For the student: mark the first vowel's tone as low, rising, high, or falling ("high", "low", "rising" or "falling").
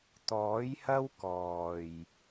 rising